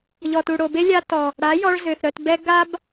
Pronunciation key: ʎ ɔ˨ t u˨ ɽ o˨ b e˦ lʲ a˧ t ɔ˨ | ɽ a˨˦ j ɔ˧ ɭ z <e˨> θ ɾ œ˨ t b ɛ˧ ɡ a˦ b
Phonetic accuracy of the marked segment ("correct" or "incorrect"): incorrect